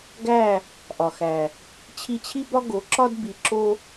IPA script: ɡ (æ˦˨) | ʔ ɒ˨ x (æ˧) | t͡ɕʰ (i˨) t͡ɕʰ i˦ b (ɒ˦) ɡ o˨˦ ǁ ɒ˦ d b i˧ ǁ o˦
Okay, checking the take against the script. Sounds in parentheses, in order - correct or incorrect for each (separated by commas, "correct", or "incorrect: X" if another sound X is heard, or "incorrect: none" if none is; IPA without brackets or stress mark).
correct, incorrect: æ˨, incorrect: i˧, correct